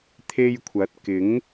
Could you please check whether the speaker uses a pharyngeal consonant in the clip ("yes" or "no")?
no